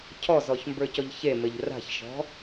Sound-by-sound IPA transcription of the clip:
cʰɔzɔçmbə˞cɔʎ çemɘʎ ra̤çʃɔ̤

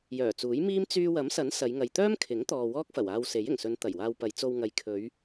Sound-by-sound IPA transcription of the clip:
jœː˨˩t͡suː˨˥jmiː˥m t͡syː˧wɐ˨˥msɐ˨˥n sɐ˨˧jŋɐ˨j t̪œː˥mkʰɪ˨˥ŋt̪ɔː˨ wɔː˥k̚fɐ˨˩waː˧wse˨˥j ɪ˨˩ŋsɵ˨˧n t̪ɐ˨˩jwaː˧wpɐ˨˧j t͡so˧wŋɐ˨˧j kʰɵ˨˧ɥ

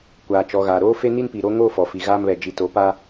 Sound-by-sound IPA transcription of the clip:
kʷaː˨t͡ʃɔ˨ɣaː˨ ɾoː˦fe˦ni˦npi˨ ɾo˦ŋoː˦fɔ˨fi˨ ɣaː˦mβɛ˨ d͡ʒi˨to˨˦pa˦

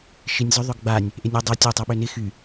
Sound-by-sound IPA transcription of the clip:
ʃɪnʲzʏ ðˤœɡɡ͡banʲ | ʔɪnʲø dˤø tʲø tˤøɓønɪ xy

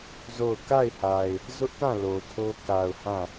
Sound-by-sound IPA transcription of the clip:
zo˦˨ʊ̯ ka˦˨ɪ̯ha˨ɪ̯ | zʊ˦ʔtã˦˨ lo˨tʰo˦ ka˨ʊ̯ hã˦˨

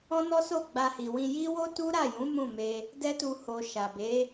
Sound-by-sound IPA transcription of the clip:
ɔ̃˦nɔ˦so˦˨ ɡ͡ba˧hi˨wĩ˧ji˦ wo˦ tu˦ɾa˦˨jũ˨˦ mũ˦˨me˧ | dɛ˦tu˧ ho˨ ʃa˨be˨˦

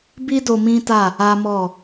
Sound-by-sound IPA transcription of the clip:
bi˦do˧ mĩ˦ta˦˨ | a˦mɔ˦˨

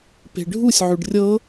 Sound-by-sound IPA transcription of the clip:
pe̤ɖʱusʲ ʕʉɖrʲɤ

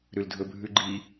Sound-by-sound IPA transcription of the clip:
ɾʉldʱɵbʱʉɡ͡ǃi

